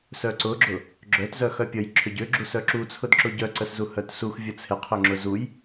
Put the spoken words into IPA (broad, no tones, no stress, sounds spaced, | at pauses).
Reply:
s œ ǀ ʊ ɡ͡ǁ ʊ | ɡ͡ǁ œ t z œ x œ pʲ ə j ǁʰ ʏ ɟ ʏ ɡ͡ǁ u s œ ǁ u t͡sʰ ʊ d ǁ ʊ ɟ œ ǀ ə s z u h œ t s u x vʲ ə t͡sʰ ɪ qʰ ʏ ŋ͡ǁ ʊ z u j